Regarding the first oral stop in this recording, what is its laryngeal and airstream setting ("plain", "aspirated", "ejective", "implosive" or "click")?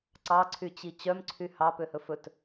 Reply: click